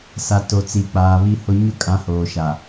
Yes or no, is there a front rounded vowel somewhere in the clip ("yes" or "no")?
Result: no